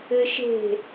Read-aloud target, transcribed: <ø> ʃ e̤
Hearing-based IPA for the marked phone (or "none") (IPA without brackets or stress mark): ɘ